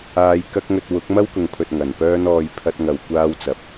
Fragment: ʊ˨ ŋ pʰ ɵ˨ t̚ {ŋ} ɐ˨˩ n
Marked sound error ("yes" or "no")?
no